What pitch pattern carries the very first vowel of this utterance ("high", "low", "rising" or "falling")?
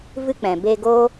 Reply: high